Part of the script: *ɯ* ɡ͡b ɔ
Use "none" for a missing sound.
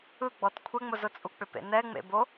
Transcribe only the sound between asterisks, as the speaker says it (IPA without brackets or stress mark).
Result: ɯ